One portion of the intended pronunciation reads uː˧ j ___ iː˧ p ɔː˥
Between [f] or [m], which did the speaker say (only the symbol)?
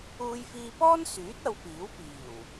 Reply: f